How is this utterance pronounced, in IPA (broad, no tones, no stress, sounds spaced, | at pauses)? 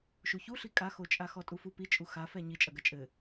ʃ u ç u ɬ i kʼ a x o t͡ʃʼ a x ɔ tʼ u f u p i t͡ʃʼ u x a f ɛ ɲ i t͡ʃʼ ɐ ɡ ɐ t͡ʃʼ ɘ